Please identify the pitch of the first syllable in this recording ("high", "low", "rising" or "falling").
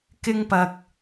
high